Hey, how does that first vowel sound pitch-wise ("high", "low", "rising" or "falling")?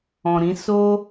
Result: low